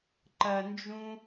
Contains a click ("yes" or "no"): yes